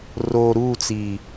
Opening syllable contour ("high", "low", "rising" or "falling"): low